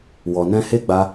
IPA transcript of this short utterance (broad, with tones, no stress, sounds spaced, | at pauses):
w ɔ˨ n ɛ̃˧ h e˦ ɡ͡b a˦